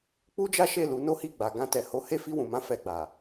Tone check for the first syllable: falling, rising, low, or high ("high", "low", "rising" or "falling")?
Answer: high